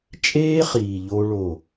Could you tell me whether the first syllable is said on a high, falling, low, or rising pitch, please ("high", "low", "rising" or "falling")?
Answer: high